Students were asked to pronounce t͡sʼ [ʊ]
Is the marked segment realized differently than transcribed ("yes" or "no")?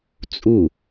yes